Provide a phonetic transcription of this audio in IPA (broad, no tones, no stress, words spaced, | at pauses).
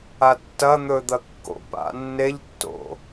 atːɐ n̪ɵd̪ɐkːo̰ pa̰nːeʎtːo̰